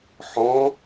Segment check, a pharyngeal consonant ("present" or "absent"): present